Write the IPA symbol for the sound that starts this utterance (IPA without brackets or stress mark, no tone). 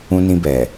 ũ